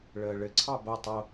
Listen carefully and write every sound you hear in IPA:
ɭ əː ɭ ɘ ǀʰ ɑ b o tˤ o

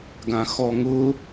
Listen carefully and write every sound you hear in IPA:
ɡ ã x ɔ ŋ ʊ

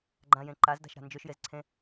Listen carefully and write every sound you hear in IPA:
ɡ͡ǃ ã j ẽ ǃ a z d a̤ ʃ ɾ a̤ n d͡ʒ ø ʃ j e z ǀʰ ẽ

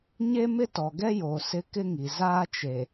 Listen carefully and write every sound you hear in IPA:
ɲ e˦ m ɪ˦ t ɔ˨ ɡ ɛ˦ j oː˨ s ɪ˦ k ɪ˦ ŋ i˨ z aː˦ t͡ʃ e˨

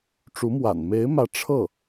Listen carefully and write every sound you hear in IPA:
ʈ͡ʂ u˧˥ m w a̰˨˩ n m e˧˥ ɪ̯ m ä˧˥ ʈ͡ʂʰ ɤ˥˩

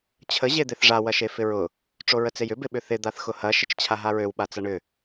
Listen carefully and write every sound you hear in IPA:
t͡ɕʰ ə ʑ e d̪ e θ ʐ a w ɐ ʃ e f ɪ ɹ ʊ | ʈ͡ʂ o ɹ ə t͡s e j ʏ b ɪ ɓ ʏ θ ɪ d̪ a θ x ʊ h ɐ ʃ ɪ t͡ʃ t͡ɕʰ a ɦ a ɹ ø w ɓ a t͡s ɐ ɳ ʏ

